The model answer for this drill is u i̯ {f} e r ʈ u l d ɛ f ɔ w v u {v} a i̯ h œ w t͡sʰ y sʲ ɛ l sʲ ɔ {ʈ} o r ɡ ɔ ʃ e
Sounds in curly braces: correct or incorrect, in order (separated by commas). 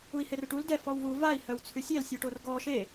incorrect, correct, correct